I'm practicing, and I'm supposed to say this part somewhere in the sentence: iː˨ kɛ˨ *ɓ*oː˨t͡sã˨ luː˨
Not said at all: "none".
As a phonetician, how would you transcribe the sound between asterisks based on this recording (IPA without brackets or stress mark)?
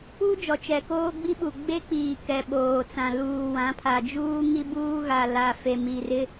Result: ɓ